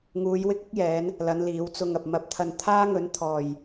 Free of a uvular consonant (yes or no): yes